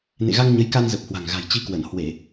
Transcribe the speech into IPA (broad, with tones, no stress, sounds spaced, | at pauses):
n ḛ˧˨ ɣ a˧ ŋ ɲ ə˨˦ j k a˧ n z ə˨˩ p̚ h w a̤˨˩ ŋ ɣ a̤˨˩ j t͡ɕ i˧ k w ə˧˩ n h w e˧˩˨